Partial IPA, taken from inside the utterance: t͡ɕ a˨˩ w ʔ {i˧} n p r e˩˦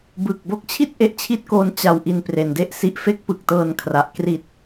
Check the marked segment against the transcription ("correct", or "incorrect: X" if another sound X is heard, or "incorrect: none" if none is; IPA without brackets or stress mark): correct